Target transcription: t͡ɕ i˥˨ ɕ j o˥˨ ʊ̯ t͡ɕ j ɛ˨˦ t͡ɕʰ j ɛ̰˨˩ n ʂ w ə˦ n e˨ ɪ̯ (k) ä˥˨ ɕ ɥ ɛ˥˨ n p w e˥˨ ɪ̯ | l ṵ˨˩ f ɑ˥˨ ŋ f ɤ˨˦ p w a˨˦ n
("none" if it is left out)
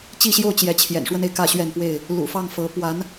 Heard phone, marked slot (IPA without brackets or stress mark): k